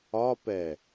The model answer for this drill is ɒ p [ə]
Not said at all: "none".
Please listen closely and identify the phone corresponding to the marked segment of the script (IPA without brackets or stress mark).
ɛ